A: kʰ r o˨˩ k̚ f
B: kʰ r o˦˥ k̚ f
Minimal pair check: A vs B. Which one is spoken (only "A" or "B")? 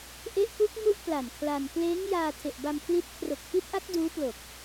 A